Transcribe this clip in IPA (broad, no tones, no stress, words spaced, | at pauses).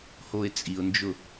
hoɪ̯t͡sʼiʊ̯nd͡ʒʊ